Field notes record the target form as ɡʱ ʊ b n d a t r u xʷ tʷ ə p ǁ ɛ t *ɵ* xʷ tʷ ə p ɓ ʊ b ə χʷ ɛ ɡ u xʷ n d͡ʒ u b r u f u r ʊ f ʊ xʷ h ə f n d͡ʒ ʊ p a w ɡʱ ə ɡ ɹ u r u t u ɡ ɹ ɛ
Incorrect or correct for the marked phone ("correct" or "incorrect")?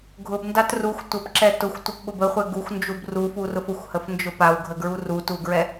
incorrect